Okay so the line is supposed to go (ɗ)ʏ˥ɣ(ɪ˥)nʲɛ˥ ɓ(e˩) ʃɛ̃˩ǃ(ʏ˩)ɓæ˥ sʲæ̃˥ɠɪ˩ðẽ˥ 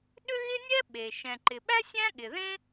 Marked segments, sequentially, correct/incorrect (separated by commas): correct, correct, correct, incorrect